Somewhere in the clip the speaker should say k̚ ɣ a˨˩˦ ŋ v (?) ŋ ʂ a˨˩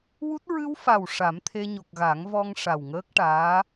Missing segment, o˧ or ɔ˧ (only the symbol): ɔ˧